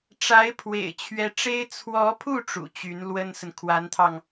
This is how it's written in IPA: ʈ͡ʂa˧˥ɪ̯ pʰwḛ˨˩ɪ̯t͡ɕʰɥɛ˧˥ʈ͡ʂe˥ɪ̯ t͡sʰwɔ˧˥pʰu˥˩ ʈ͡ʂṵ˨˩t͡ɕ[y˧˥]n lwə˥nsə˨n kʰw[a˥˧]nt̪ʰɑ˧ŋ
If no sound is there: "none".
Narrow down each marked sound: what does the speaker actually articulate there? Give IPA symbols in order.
y˧˥, a˧˥

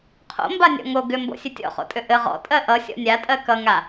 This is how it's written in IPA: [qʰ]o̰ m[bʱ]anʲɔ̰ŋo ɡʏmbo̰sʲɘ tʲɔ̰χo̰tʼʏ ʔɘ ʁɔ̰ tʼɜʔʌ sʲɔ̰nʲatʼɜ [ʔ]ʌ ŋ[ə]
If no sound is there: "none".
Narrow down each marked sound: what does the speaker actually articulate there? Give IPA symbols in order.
qʰ, b, k, a

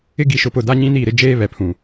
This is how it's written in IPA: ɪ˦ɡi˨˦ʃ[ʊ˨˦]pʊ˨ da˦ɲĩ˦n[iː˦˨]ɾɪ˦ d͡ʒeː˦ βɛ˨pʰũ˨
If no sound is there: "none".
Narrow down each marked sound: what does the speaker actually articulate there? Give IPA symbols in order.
ʊ˨˦, iː˦˨

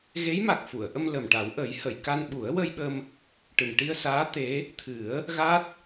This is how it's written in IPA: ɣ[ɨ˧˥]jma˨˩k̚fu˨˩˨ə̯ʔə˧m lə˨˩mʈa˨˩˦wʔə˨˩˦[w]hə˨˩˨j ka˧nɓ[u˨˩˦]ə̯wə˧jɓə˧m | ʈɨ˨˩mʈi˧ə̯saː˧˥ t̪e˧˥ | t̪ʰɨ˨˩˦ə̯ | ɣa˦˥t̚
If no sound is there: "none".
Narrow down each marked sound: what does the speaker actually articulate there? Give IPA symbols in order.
e˧˥, j, u˨˩˦

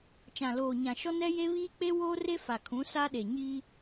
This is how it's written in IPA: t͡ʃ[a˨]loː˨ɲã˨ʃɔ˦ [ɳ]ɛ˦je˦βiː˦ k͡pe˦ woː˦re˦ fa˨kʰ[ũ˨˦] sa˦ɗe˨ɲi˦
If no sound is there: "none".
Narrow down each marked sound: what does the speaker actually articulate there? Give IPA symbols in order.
ã˨, n, ũ˨˦

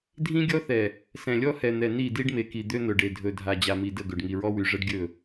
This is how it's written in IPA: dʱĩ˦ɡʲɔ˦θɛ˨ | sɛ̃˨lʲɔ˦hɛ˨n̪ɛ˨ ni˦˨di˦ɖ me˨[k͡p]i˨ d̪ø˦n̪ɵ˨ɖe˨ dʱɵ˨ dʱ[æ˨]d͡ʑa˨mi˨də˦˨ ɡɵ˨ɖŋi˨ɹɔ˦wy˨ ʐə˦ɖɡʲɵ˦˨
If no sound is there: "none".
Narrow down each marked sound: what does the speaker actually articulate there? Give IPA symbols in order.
k, a˨

